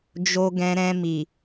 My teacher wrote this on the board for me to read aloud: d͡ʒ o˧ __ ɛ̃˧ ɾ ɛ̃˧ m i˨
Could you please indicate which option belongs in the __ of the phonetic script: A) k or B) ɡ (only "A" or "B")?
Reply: B